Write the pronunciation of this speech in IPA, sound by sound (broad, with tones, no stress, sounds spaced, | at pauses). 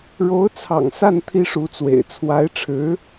ɻ o˧˥ ʊ̯ t͡sʰ ɑ̰˨˩ ŋ s a˥˩ n t̪ʰ i˥ ʂ u˧˥ t͡s w ḛ˨˩ ɪ̯ t͡sʰ w a˧˥ ɪ̯ ʈ͡ʂʰ ɻ̩˧˥